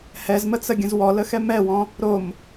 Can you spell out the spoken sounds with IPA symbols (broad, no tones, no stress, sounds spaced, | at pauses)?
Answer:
h ɛ z m ə t͡s ə ɡʲ ə̃ z w ɔ l ə x ɛ m ɛ w ɔ̃ | ɾ o m